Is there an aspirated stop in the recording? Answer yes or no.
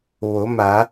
no